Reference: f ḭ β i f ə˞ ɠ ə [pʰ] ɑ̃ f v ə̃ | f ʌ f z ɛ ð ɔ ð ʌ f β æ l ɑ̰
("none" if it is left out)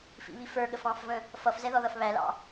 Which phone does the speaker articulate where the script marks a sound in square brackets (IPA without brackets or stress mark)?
f